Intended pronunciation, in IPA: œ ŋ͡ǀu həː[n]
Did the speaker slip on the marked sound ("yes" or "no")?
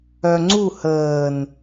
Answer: no